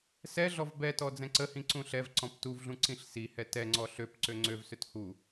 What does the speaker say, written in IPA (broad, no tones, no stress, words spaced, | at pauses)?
sɛɮɔv bɛtɔ d͡zɛ̃ǀəhĩ ǀũɬɛvǀɔ̃p tuvɮũ ǀĩɬsihɛ tɛŋ͡ǀɔ ɬøp ǀøŋ͡ǀøvsøt hu